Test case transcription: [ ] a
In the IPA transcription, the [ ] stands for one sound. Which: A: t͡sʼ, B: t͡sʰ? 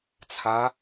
B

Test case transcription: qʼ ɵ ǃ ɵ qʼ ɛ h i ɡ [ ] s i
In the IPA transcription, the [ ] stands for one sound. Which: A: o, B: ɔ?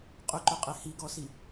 B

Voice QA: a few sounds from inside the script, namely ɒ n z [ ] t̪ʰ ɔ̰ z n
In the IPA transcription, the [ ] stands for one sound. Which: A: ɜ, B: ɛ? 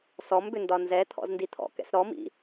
B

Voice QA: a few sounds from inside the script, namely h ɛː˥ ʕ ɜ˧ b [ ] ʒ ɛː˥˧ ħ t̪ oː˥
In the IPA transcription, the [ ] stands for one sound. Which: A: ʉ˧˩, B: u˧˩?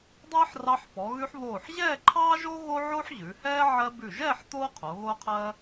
A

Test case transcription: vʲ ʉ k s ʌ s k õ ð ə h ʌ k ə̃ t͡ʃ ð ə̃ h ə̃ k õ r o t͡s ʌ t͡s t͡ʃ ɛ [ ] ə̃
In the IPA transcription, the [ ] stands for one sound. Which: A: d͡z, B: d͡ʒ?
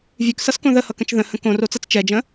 B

